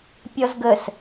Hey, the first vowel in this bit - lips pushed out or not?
yes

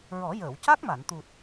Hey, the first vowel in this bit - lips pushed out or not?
yes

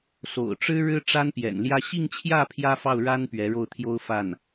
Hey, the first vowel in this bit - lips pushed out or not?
yes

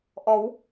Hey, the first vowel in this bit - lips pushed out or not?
yes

